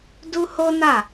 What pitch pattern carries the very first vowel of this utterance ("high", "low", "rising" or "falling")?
high